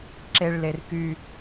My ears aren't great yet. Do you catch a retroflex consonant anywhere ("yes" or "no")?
yes